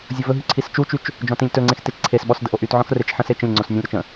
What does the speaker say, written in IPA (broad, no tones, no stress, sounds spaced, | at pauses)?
zʲ ʊ v ɵ ɦ y ǀʰ i s t͡ʃ u t͡ʃ y t͡ʃ | d͡ʒ ɔ̃ t ĩ lʲ t ɵ ŋ͡ǀ ẽ x t e t͡ʃ ǀʰ e s ɓ ɔ s d ə ʔ o ʔ y t ʕ ɔ̃ x r e t͡ʃ ħ ə̃ s e t͡ʃ ə̃ lʲ ŋ͡ǀ o s nʲ ə̃ lʲ ɾ ɔ t͡ʃ ə̃